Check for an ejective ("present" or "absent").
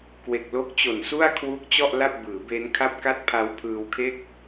absent